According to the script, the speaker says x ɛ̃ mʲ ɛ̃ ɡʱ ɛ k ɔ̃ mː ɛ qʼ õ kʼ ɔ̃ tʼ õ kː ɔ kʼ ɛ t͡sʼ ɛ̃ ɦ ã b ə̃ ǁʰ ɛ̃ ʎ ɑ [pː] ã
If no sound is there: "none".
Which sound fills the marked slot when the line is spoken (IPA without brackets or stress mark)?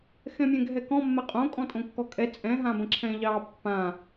pː